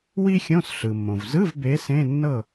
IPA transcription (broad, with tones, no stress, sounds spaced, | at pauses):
w i˥ xʲ õ˧˥˧ s ɬ ɯ˩ mː õ˩ v z ɯ˧˥˧ v b e˨˦ s ẽ˧˥˧ nː ɤ˥˨